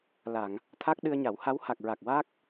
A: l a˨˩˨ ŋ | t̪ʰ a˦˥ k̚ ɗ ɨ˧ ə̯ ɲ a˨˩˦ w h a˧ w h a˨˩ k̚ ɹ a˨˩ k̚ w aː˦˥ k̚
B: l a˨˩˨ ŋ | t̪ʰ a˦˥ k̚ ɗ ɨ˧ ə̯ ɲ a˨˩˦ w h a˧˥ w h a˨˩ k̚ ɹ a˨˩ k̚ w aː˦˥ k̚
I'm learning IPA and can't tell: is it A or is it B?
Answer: B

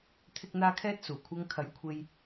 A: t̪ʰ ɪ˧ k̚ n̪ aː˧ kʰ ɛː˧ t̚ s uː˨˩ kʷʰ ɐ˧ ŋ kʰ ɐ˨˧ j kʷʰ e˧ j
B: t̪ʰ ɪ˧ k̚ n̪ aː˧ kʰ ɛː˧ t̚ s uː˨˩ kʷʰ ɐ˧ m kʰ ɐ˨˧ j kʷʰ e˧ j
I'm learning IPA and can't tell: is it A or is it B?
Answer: A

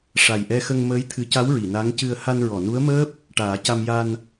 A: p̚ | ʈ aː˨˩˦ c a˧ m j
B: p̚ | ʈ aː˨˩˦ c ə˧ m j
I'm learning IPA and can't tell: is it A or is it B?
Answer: A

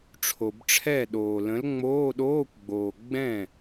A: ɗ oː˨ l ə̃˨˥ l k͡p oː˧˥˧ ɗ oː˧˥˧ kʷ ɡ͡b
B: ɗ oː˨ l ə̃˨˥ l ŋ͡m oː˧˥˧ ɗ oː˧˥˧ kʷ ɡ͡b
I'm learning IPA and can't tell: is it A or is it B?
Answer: B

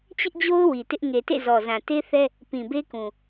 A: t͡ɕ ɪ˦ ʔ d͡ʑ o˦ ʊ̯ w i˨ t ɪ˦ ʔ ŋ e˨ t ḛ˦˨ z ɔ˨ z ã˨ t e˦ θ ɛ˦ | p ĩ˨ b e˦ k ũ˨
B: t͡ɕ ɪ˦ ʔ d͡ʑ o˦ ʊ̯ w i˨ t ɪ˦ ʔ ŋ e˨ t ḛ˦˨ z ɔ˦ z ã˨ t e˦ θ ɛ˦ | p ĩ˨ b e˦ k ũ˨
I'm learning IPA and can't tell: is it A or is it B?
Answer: A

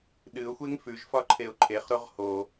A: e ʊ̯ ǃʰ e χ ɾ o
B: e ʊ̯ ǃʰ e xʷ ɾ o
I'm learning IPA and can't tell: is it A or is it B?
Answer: A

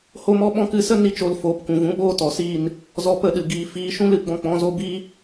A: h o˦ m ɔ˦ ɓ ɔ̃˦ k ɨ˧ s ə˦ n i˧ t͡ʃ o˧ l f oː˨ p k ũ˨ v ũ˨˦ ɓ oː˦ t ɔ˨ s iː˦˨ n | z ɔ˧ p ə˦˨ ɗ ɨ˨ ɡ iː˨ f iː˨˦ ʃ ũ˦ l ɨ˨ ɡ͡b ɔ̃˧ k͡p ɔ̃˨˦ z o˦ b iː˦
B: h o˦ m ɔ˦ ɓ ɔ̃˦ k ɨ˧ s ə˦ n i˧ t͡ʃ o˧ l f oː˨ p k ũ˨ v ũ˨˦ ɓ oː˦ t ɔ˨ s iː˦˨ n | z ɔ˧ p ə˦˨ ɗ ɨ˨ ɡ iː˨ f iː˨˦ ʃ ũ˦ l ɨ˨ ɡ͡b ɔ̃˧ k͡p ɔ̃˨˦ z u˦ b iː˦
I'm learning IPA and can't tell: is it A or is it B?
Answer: A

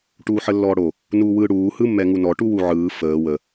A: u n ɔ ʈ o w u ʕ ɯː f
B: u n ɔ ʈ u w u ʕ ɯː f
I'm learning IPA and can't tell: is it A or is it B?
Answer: B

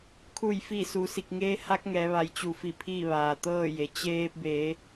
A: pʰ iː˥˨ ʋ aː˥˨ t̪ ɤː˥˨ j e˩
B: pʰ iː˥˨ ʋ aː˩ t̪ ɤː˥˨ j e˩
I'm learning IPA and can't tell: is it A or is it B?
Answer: B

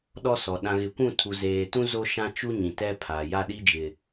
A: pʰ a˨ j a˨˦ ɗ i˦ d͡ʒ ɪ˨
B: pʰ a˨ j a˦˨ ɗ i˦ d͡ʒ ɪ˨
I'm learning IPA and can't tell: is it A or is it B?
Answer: B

